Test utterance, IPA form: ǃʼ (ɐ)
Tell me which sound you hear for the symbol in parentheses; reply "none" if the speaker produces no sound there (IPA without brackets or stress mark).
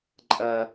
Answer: ɐ